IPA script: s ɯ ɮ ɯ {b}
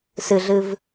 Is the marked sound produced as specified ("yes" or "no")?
no